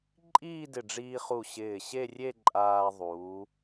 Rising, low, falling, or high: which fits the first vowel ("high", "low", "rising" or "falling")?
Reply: falling